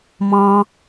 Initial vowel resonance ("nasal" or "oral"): nasal